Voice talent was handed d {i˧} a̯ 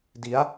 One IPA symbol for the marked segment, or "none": i˩˦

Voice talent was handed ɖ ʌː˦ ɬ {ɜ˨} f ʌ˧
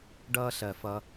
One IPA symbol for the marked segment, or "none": ɜ˨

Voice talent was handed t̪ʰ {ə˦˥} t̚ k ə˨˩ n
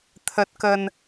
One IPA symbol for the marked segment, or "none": ə˨˩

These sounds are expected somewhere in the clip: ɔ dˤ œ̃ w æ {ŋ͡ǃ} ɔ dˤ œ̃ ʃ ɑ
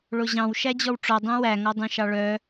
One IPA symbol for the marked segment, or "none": ŋ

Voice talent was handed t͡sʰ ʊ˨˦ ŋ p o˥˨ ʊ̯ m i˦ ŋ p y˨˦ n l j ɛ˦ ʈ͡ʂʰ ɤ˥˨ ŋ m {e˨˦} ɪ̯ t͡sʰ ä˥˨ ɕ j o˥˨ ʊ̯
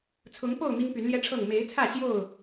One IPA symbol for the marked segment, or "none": e˨˦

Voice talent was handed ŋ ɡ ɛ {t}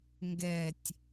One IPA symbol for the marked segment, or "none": tʲ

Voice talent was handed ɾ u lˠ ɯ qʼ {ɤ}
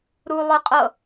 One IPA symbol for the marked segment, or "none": ɤ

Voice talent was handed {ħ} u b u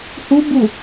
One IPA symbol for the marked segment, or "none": h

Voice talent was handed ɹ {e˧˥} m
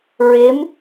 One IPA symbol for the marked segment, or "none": e˧˥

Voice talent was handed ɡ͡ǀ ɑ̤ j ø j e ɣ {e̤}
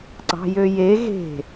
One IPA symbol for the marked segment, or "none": e̤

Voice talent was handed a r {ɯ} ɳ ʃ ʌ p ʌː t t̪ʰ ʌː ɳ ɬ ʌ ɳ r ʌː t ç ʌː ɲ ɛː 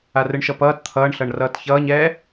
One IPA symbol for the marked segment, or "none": ɯ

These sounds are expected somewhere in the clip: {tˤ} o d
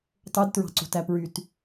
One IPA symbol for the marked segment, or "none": tˤ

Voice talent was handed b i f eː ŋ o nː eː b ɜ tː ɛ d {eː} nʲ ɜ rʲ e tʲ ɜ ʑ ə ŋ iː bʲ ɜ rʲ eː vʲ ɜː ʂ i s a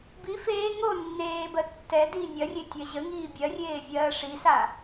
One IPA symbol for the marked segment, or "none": iː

